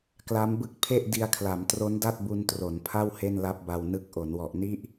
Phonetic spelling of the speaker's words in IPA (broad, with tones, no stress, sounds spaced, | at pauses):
k l a˦˥ m b ɯ˦˥ k̚ pʰ e˥˩ ʔ d i˧ a̯ kʰ l a˩˦ m t r o˦˥ n d a˥˩ t̚ b u˧ n t r o˩˦ n pʰ a˥˩ w h e˥˩ n l a˦˥ p̚ b a˧ w n ɯ˦˥ k̚ ʔ o˩˦ n w ɔ˨˩ ʔ n i˦˥ ʔ